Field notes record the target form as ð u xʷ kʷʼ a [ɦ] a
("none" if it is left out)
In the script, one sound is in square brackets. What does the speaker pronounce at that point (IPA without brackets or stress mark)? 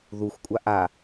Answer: ʔ